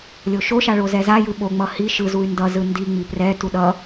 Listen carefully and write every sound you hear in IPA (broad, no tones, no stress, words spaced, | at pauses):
lʲoʃoʃa ɭozɛzajɯ ɓoŋ͡mʌ hi ʃɯzuy̯ ndʌzɯ ndi ŋ͡miprɛtu ɗʌ